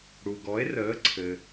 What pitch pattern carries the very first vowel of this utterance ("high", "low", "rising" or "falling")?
low